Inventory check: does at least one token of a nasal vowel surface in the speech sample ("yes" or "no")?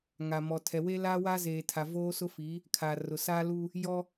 no